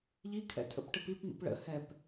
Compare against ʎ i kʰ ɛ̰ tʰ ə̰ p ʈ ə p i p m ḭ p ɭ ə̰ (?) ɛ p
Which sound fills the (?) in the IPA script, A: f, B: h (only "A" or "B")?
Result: B